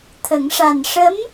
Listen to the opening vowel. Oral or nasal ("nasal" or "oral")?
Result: oral